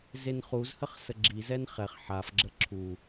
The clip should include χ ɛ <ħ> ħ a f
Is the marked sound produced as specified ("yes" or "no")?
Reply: no